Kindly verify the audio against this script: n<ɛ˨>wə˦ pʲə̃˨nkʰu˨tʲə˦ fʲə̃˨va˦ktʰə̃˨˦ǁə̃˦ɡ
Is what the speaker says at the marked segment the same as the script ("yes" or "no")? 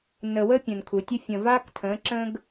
no